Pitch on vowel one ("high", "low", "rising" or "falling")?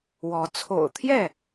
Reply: rising